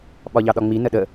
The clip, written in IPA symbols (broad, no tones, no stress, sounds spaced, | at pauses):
ɓ ɒ ʎ ɑ ɗ ɒ ŋ͡m i n ə ɗ ə